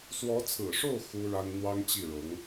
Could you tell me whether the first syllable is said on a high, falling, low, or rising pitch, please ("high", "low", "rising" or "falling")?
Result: rising